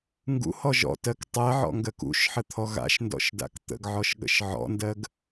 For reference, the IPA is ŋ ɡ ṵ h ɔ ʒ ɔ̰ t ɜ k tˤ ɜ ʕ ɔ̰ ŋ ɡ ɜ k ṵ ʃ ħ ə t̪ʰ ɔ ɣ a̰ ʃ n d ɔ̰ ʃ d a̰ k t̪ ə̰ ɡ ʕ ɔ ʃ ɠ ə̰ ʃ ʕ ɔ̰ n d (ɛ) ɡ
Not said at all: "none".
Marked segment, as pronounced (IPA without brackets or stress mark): ɜ